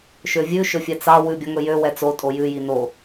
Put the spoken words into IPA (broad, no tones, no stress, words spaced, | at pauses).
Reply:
ʃøvʲʉ ʃɵfʲɛt͡sɑ wʉbʲɔŋɵjø wɛt͡sotʼo jʉji no